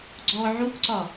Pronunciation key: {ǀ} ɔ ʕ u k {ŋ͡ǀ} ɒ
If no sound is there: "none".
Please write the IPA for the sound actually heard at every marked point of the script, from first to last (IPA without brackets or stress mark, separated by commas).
ɡ͡ǀ, ǀ